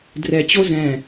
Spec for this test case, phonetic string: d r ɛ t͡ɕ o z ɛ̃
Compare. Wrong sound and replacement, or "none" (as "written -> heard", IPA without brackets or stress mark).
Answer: none